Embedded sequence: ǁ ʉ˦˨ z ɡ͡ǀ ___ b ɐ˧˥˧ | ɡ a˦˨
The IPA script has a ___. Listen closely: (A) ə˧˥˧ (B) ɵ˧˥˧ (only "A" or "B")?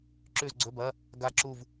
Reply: B